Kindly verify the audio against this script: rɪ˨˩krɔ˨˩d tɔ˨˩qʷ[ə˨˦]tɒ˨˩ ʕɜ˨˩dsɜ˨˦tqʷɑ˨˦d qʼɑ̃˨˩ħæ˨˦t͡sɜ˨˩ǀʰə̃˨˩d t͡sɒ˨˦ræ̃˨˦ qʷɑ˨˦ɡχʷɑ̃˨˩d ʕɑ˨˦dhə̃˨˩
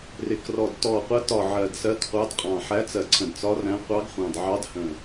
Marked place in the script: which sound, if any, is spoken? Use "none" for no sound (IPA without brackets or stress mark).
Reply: ə˨˦